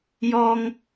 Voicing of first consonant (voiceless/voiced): voiced